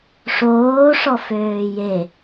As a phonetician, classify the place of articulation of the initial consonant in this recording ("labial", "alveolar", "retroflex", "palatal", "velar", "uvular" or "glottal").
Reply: retroflex